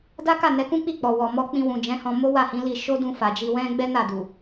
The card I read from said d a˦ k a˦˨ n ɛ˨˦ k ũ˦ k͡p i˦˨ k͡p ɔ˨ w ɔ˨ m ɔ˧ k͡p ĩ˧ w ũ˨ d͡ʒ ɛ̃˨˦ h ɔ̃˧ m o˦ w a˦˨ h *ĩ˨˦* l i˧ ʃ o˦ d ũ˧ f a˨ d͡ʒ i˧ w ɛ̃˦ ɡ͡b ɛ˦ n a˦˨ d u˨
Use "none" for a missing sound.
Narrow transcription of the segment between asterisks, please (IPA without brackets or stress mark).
ĩ˨˦